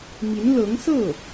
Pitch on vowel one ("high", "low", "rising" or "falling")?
rising